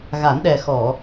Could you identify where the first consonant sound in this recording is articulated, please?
velar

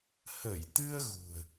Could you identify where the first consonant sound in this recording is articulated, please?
glottal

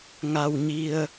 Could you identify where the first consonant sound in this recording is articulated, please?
velar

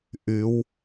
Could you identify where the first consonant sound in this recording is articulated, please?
glottal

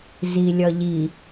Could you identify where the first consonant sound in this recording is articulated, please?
alveolar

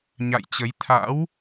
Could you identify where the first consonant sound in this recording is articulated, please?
palatal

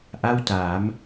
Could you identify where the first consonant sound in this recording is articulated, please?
glottal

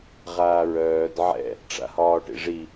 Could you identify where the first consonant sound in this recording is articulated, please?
uvular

